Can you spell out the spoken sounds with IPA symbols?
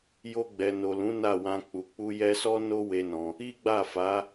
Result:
jo˧ɡ͡bɛ˨no˨lũ˨˦ na˦˨wã˧ k͡pu˨k͡pu˧ jɛ˧sɔ˦ no˦ we˦nɔ̃˧ | i˦ɡ͡ba˦˨fa˨˦

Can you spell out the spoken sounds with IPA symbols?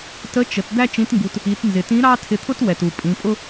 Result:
tə˧˥t͡ʃə˩˧t d̪æ˥t͡ʃĩ˧˥tŋɡu˧t | i˩˧tnzɪ˩tĩ˧˥ ɾɑ˥ tʰɪ˧t̪ʰʊ˥t wɛ˩tu˩ pʼĩ˩˧pʼʊ˥

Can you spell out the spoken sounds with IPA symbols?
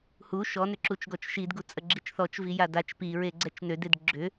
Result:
hu ʃɔnʏǁut͡ʃ ɡɔt͡ʃʃidɡu t͡sʼəɡ͡ǁit͡ʃθɔt͡ʃvi jadat͡ʃ piɹe ɡ͡ǀɛt͡ʃnøded ɡ͡ǁʏ

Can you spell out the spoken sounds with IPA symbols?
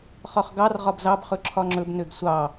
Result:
χɒχɡɑr ʁɒbzɑb χɵǁʰɒŋ͡ǁɵb nøɡsʷɑ

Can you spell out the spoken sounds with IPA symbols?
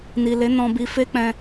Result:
ni˨le˨˦ nɔ̃˧bi˧fe˦k͡pɛ̃˧

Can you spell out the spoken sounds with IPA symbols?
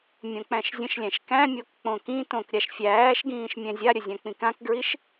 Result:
mʲõk͡pæ̃ʃzʲə̃ʃlʲæ̃ʃ kæ̃mʲok k͡põkĩtõk ɾʲaʃfʲæːʃɡĩːʃ mʲɛ̃zʲaɾʲə zʲãk͡pĩkãkɡɹiʃ

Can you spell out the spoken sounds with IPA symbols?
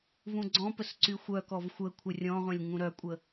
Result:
vũɡ͡ǀɔ̃pəs ǀyxʷœkɔv xʷə kʷʰərʲɔ̃ʁʷɛ̃lʲ ŋũɾœkʷʼə

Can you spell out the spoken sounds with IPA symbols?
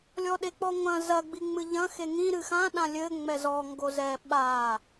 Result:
lʲɔɗek͡pɔŋʷɐ̃ zɐɡ͡biŋ͡mɨ ʎɐ̃ xeŋĩ ɾɨxã ɗãlʲɘ ŋ͡mɛzɔ ŋɡozɛ ɓa

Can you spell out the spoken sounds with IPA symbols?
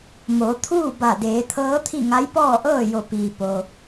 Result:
mo˩˧t̪ʰuː˥˨ ba˧˩deː˩˧t̪ʰɤː˧˥t̪ʰi˥˨ ŋa˧˥jpɔː˥˨ʔɤː˥˨ jo˧˩ piː˩ po˩

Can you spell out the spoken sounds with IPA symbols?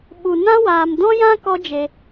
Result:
ɓu˧ nã˦waː˨m dɔ̃˦jã˦ kɔ˦d͡ʒe˧

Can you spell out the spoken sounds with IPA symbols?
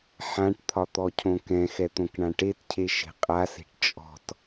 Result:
ħãʈt̪ʰɒt̪ɔcʰõ kɛ̃xɛt̪õkɳã ʈetcʰeʃe̤ qʼase̤ʈ t͡ʃʼɔ̤t

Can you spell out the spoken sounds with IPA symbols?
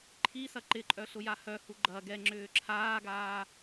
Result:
ǃʰisɐ ǃɪǃʼœ ɬʊjahœhu ɡ͡ǃɐ ɡɛŋ͡ǁʏː ǁʰaːɡaː

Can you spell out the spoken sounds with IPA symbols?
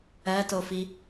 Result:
ɜtofi

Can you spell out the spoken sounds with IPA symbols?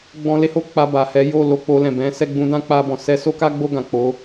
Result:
ɡ͡bɔ̃˧le˦ho˧ k͡pa˧ ba˨hɛ˨˦jo˦˨ lo˧k͡po˧lɛ̃˨ bɛ̃˨˦sɛ˦˨ ɡ͡bũ˧dã˦k͡pa˧bɔ̃˨ sɛ˧so˦ka˦ɡ͡bo˦˨ ɡã˨k͡po˨˦

